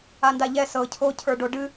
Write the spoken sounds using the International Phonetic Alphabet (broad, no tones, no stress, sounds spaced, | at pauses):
a n d a ʎ ɛ s ɤ cʰ o cʰ ə˞ ɖ o ɖ ɨ